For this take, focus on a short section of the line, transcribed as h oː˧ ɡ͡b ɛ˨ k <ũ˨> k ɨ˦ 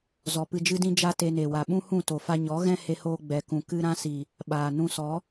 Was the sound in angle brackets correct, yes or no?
yes